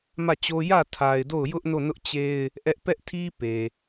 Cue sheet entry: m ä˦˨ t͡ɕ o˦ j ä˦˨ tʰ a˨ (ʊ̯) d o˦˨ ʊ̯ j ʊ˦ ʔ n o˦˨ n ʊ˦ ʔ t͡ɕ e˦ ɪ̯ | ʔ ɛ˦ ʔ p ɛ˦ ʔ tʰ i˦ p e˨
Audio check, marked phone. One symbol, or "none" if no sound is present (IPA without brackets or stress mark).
ɪ̯